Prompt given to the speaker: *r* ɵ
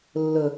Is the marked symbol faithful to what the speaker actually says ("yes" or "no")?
no